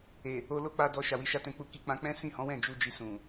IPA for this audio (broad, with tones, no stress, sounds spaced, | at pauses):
e˨ | o˧ l o˦ k͡p a˧ d ɔ˧ ʃ a˨ w i˨˦ ʃ a˦ t ɛ̃˧ k͡p u˧ k i˧ k͡p ã˧ k͡p ɛ̃˦ s ĩ˦˨ h ɔ̃˨˦ w ɛ̃˦˨ d͡ʒ u˧ d͡ʒ i˧ s ũ˨